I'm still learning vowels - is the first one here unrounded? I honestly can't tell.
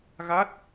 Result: yes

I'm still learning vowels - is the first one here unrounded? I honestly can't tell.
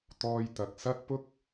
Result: no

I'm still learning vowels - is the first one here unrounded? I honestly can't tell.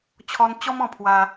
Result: no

